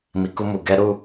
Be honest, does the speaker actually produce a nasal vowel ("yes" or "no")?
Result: no